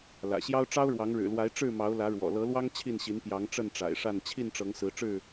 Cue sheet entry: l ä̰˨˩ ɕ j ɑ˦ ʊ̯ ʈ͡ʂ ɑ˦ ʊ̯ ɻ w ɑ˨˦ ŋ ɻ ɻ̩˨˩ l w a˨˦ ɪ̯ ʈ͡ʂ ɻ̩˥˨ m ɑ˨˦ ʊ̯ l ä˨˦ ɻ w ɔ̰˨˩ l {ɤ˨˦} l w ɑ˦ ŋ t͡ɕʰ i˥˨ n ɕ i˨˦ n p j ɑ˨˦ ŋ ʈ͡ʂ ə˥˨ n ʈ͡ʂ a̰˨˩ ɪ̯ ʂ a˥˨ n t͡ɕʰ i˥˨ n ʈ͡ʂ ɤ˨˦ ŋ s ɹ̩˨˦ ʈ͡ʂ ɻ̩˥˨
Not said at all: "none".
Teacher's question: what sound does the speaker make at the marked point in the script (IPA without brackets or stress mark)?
ɤ˨˦